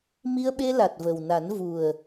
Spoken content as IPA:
m i˧ ə̯ ɓ e˧ l a˨˩ t̚ v ə˨˩ w n a˨˩˦ n v u˨˩ ə̯

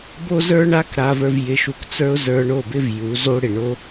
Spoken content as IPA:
b o˦ z ə˞˦ ɳ a˦ k ɾ a˧ v ə˞˧ v j ɪ˧ ʃ u˧ k t͡s ə˞˦ ʊ̯ z ə˞˧ ɳ o˦˨ b ɪ˦ v j u˨˦ z o˦ ɽ ɪ˨ ɳ o˦

